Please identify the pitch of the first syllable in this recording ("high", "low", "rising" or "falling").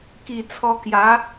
low